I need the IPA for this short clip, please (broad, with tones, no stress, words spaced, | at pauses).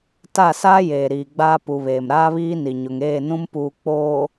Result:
ta˦˨saː˦jeː˨ ɾiː˨ɡ͡baː˦ pu˨βeː˨m ɾaː˦βiː˦ni˨ɲʊ˨ŋ eː˦˨nũ˦mpuː˨ k͡poː˨